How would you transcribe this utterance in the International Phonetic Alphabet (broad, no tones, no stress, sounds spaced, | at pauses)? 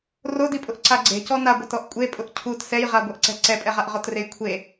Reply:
r o d i pʼ ʊ ʔ ǀ a ɡ͡ǀ e̤ c ɔ n a ɡʷ ɛ t ɔ ʔ kʷʼ e pʼ ʊ ʔ cʰ u t s ɛ j ʁ a ɡʷ ɛ ʔ ǀ ɛ̤ ǀ ɛ pʼ ɛ ʁ a ʔ ʁ ɔ t r e j kʷʰ e